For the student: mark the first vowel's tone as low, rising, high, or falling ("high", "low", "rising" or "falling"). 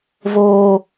high